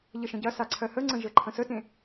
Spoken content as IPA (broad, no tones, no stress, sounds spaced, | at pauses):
ʎ ə ʃ ə̃ ɟ ɐ s a ǀʰ ɜ h ə ŋ͡ǀ ə̃ ʒ ə ǃʰ ə̃ s ə t ẽ